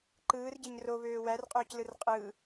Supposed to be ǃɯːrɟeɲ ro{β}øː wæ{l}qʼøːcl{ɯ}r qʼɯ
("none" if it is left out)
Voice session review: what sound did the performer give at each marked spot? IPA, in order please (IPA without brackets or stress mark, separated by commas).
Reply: β, r, ɯ